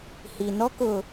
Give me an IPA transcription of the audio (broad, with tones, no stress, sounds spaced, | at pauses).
h i˨ n ɔ˦ k ʊ˨